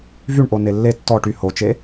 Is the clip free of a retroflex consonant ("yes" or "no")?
no